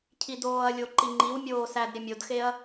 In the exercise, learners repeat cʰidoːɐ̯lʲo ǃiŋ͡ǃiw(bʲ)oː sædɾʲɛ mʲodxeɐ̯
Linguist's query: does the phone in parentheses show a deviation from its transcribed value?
yes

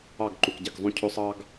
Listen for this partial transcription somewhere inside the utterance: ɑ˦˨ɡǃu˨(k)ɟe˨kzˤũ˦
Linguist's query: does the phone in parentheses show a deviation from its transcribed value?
no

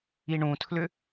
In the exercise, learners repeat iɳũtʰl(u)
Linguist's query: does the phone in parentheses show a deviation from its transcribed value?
yes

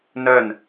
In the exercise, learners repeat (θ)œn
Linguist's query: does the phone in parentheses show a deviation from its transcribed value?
yes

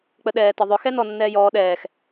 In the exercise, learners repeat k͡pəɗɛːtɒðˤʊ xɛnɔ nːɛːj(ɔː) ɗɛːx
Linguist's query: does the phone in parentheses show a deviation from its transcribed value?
no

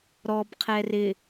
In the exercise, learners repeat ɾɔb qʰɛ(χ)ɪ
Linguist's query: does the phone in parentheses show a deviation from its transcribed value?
yes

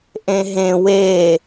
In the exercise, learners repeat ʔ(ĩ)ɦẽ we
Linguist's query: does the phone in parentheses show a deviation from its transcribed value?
yes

